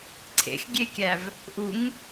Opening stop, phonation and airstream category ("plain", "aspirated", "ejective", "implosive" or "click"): click